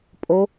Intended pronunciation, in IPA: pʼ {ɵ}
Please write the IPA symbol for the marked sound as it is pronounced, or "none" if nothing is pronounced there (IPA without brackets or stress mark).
o